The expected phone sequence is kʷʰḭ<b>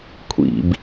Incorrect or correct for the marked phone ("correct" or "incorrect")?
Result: correct